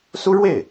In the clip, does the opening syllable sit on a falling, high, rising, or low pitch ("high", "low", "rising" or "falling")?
high